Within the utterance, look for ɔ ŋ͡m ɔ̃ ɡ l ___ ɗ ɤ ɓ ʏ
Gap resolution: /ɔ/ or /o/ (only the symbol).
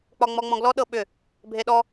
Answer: ɔ